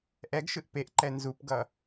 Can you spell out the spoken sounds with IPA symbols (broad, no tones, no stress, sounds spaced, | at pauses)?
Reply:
ʔ ɛ ɡ ʃ ɯ ʔ p e ʔ ǃ ɛ n z u p ɡ ʌ